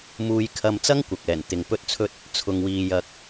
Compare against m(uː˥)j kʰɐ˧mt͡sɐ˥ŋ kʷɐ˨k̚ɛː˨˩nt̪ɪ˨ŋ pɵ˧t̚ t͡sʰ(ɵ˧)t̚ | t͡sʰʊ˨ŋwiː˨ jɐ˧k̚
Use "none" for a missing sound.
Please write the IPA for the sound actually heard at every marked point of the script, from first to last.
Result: uː˧, ɵ˧

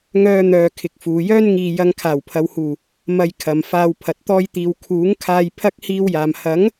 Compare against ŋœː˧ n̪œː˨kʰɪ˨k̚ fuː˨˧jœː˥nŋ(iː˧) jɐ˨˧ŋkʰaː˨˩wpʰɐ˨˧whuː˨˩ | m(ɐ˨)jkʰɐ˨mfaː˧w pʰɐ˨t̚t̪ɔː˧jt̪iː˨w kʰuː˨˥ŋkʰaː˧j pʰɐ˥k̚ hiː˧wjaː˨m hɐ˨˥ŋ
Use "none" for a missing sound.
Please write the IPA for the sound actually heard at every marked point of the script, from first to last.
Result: iː˧, ɐ˧

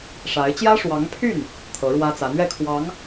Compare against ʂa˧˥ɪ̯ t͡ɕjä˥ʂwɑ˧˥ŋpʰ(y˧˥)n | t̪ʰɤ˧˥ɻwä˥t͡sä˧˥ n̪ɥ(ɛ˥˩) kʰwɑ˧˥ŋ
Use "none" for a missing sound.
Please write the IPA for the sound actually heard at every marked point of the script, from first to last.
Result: y˥˩, ɛ˥˩

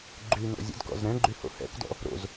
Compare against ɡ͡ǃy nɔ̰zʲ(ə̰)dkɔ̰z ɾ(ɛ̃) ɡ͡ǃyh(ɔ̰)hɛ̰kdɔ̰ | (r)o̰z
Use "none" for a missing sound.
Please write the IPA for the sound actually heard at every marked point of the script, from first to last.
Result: ə̰, ɛ̃, o̰, ɾ

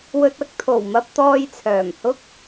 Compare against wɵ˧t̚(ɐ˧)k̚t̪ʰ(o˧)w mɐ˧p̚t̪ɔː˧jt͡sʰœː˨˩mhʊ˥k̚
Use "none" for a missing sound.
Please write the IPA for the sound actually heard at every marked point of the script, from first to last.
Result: ɐ˥, o˨˩

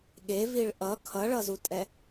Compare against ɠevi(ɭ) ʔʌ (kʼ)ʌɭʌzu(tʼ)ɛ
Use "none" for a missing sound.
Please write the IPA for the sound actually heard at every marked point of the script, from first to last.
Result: ɭ, kʰ, tʼ

